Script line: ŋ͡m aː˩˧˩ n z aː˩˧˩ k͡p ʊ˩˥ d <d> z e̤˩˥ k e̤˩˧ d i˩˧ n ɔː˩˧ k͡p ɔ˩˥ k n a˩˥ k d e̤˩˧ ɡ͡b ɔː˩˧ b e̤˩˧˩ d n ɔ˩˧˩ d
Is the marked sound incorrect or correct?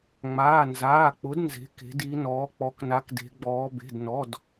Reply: incorrect